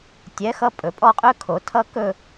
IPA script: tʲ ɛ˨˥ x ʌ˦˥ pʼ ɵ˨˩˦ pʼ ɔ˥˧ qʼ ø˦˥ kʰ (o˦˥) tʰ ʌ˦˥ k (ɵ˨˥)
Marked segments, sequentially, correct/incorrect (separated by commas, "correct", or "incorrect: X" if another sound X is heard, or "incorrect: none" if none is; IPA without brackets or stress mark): incorrect: o˨˩˦, incorrect: ɵ˥˧